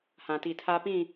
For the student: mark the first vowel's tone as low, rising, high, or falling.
low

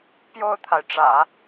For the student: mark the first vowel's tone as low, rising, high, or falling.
falling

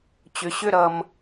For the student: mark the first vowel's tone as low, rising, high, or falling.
low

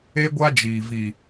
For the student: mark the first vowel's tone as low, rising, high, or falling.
high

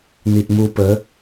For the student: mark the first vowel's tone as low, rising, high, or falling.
low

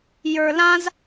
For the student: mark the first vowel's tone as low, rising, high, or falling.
low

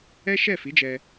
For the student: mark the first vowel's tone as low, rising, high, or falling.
high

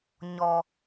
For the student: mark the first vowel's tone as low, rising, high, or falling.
low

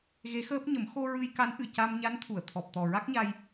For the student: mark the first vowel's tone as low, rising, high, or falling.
rising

